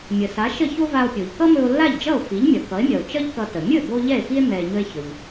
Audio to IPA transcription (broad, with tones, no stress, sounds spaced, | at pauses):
mʲ ə˩ s a˩˥ ʃ ə˥˩ ç o˥ v a˧ o̯ pʲ o˩ ʎ k ʌ˥ m ɵ˧ o̯ lː a˥˩ ʎ d͡ʒ ʌ˥˩ o̯ f i˩˥ ʎ mʲ ʌ˩ k ʌ˩˥ e̯ mʲ ʌ˩ o̯ t͡ʃ ʌ˥ ʎ k ʌ˧ t ə˩ mʲ ɵ˥˩ b o˧ ʎ ɛ˥˩ e̯ f i˥ e̯ m ɛ˧ e̯ ɲ ɵ˥ e̯ ç ɵ˩ ʎ